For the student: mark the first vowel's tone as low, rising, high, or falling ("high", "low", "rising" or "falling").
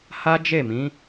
high